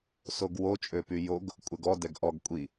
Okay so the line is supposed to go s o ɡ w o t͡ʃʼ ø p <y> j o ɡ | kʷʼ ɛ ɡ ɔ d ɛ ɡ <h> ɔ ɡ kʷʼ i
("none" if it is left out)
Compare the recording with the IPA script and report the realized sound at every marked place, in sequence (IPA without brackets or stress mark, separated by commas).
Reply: y, ʔ